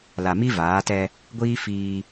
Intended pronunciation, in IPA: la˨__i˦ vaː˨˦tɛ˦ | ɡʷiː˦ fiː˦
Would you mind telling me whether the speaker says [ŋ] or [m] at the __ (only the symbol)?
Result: m